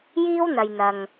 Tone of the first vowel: high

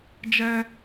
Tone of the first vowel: high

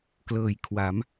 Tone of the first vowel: low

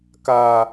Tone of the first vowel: high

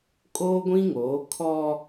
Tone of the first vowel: high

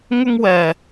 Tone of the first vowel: high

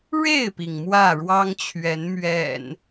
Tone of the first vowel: falling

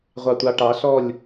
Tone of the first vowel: low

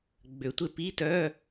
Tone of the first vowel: low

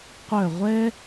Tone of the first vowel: falling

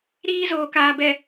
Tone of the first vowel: high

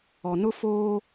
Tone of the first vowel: low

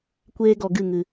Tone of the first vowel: high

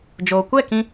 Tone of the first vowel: low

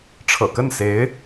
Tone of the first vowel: low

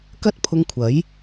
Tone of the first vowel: high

